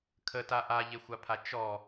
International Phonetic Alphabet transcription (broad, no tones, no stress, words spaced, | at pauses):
kʰəta ʔaʎexʷapʰa t͡ʃɔ